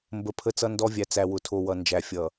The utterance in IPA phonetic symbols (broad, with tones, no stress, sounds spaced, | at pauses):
m b ə˨ pʰ ə˦ t͡s ʌ˦ n d ɔ˦ vʲ æ˨ t͡s æ˨ w ʊ˨ tʰ o˨ w ʌ˨ n d͡ʒ æ˨ fʲ ʌ˨